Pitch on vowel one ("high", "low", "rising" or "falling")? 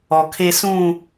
low